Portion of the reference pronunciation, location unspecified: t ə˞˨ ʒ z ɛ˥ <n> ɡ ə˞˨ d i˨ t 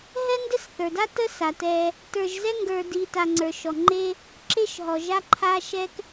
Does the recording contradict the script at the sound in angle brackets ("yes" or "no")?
yes